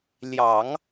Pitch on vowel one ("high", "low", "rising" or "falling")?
low